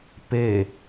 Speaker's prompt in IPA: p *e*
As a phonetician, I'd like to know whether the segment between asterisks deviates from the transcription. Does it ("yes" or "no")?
no